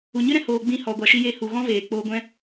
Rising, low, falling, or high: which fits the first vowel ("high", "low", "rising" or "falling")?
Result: low